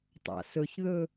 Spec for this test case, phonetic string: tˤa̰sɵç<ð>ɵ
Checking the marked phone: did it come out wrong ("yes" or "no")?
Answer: no